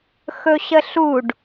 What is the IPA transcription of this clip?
x ɵ ɕ ə ɬ u ɖ

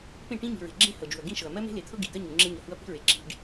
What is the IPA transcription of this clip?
p ẽ˦˨ ʈ ĩ˦ ɲ i̤˨ ɹ e̤˨ ɡ͡ǁ ẽ˦ h ɤ˨ d͡ʒ u˨ ɐ̯ ɡ ĩ˦ ʃ ɤ˨ ɐ̯ m ɜ˦ m e̤˦ l e˨ t̪ʰ ɤ˦ ɡ i˨ d̪ ɜ˦ ɲ u˨ ŋ͡ǁ ẽ˦ ɲ ɤ˨ h u˦ ɐ̯ p i̤˦ ɹ e˨ ǁ i̤˦ ɖ

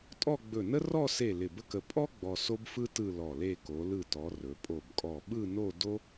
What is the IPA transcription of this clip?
tʼ ɔ˥˧ ɡ͡b ɵ˧˩ n ə˥ r ɔ˥˧ s e˧˩ l ɪ˧˩ b ə˥ k ə˧ pʼ ɔ˥ ɡ͡b ɔ˧ s o˥ b f ɯ˥ t ɯ˥˧ l ɔ˧˩ l e˥˧ k o˩˧ l ɯ˧˩ t ɔ˩˧ r ɵ˩˧ pʼ o˧˩ b kʼ ɔ˧˩ ɓ ɯ˥˧ n o˥˧ d o˥

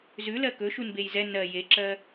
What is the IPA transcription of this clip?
z ʉ l ɜ k ɵ ʃ u n b e j z ɛ n ɜ j e ǁ ɜ

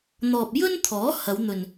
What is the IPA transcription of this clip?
n̪ ɔː˨ p̚ j ɵ˥ n t̪ʰ ɔː˨˥ h ɐ˨˧ w n̪ ɵ˨ n

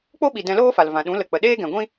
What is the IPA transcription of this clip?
k͡p o˦ ɓ i˨ d ɛ̃˧ l oː˦ f a˨ l v ã˨ ɗ ũ˨˦ l ə˨ k͡p ə˨ ɗ eː˦ ɡ ɛ̃˨ ɡʷ ĩ˦

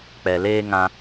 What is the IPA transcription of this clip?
k͡p ɛ˨ l eː˦ ŋ ã˧

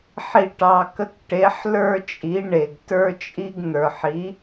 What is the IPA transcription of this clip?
ħ i˨ ʈ ɑ˨ k ə˨˥ k ʈ e˨˥ ħ l ə˞˦ t͡ʃʼ i˨˥ ɳ e˨ ɡ t ə˞˦ t͡ʃʼ i˦ ɡ n̪ ə˞˨ ħ i˨˥

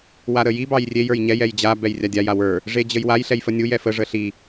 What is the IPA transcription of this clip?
w a ɾ ə j i b ɑ j rʲ e j ə˞ j ɲ ɛ j ɛ j d͡ʑ a b ɛ j rʲ a dʲ a j a w ə˞ | ʐ e d͡ʑ ə j w a j ɬ ɛ j f ə nʲ u j ɛ f ə ʐ ə ɬ i

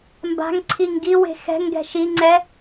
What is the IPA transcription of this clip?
m b a̤ ŋ ǀʰ i ŋ ɡ i w e̤ x ɛ̤ ŋ ɡ ɛ̤ ʃ i ŋ͡ǀ ɛ

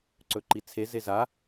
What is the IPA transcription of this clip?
ǀ ɵ ǃ i t͡sʰ e z e z a

